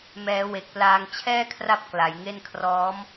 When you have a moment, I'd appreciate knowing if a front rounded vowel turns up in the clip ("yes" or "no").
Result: no